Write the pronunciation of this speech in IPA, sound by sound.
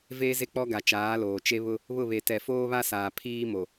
v eː˦ z e˦ k͡p ɔ˦ ɡ a˨ t͡ʃ aː˨˦ l oː˨ t͡ʃ e˦ β ʊ˦ | β ʊ˦˨ β e˨ t ɛ˨ f oː˦ β a˦ s aː˨ pʰ iː˦ m o˨

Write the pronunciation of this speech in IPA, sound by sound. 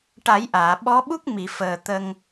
ʈ a˨˩˦ j ʔ aː˨˩˨ ɓ ɔ˧˥ ɓ u˦˥ k̚ m i˨˩˨ f əː˨˩ t̪ ə˧ ŋ

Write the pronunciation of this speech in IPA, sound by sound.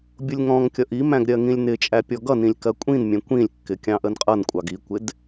bʲ ʊ lʲ ŋ ɔ̃ ŋ kʲ ʌ ʔ i m æ̃ ɡ ɾʲ ɜ ŋ ĩ lʲ n ɪ t͡ʃʼ æ pʲ ɔ ɡ ʌ n ĩ lʲ k ɜ kʷʼ ĩ n mʲ ɛ̃ kʷ ĩ lʲ kː ɪ kʲ ɑ̃ ʔ ə n qʼ ʌ n kʷʼ ɑ ɡ i kʷ ɪ d

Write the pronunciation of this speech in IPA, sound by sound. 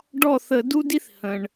ɖ ɔ˥˩ θ ə˧˩˧ d u˥ d i˥ θ h ə̃˩ ɳ

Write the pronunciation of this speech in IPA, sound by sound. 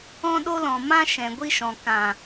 ɔ̃˧ ɗ o˧ l ɔ̃˨ m ã˧ ʃ ɛ̃˨ ɡʷ i˧ ʃ ɔ̃˨ k ã˨

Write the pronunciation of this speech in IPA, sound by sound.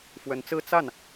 f w ə˧˥ n t͡s ɹ̩˥ t͡s a˥˩ n

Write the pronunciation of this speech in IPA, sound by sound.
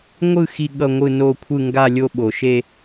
ŋʷ ɯ˥˧ x i˥˧ ɠ ʌ˥˧ ŋʷ ɯ˥˧ n o˥˧ kʷʰ ɯ˥˧ ŋ ɡ a˥˧ lʲ o˥˧ ɓ o˩ ʃ e˥˧

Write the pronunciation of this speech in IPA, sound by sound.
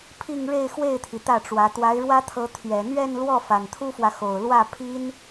pʰ i˥˧ ŋ ɻ e˥˧ ɪ̯ x w e˥˩ ɪ̯ t̪ʰ i˩ t̪ ä˥˩ ʈ͡ʂ w ä˧˥ t̪ w a˧˥ ɪ̯ ɻ w ä˥ t̪ʰ ɤ˧˥ t̪ʰ ɥ ɛ˨˩ n̪ ɥ ɛ˥˧ n l w ɔ˥˩ f a˨˩ n t̪ʰ u˥ f w ä˨ x o˨˩ ʊ̯ l w ä˥˩ pʰ i˥ n

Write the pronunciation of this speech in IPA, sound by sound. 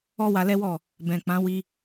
ɔ˦ w a˧ l ɛ˦ w ɔ˦˨ | b ɛ̃˨ k͡p ã˨˦ w i˧

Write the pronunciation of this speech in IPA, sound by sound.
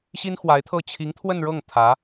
ɕ i˥ n x w a˧˥ ɪ̯ t̪ʰ ɤ˥˩ t͡ɕʰ i˧˥ ŋ t̪ʰ w ə˥˧ n ɻ ɤ˥˩ ŋ t̪ʰ ä˧˥

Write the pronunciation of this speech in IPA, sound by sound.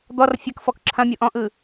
d̪ ɔ r fʲ ɐ k f ɔ k ǁʰ ɐ̃ mʲ o ʔ ɔ̃ ʔ ɯ

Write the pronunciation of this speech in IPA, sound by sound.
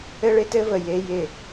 ɘ˦ ɭ ɪ˦ t ɘ˦ v ə˨ j e˦ j ɪ˦˨

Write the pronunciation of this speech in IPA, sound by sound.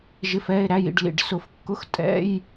ʒ ɪ˩˧˩ f ɛ˩˧˩ e̯ ɾ æ˩˧˩ j ḭ˩˧˩ ɖ l ḭ˩ ɖ s ʊ˨˩˦ f kː ʊ˧˥˧ x tʼ ɛ̰˧˥˧ j

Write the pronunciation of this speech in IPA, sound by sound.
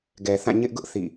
ɡ ɛ˨ θ ã˦˨ ɲ ɪ˦ ʔ ɡ ʊ˦ ʔ θ ḭ˦˨

